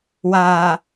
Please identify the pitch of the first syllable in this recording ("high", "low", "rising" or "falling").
low